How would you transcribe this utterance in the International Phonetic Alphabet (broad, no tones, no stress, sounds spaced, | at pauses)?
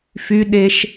f y ɗ e ʃ